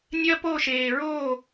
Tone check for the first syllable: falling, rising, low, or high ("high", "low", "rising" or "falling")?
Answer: high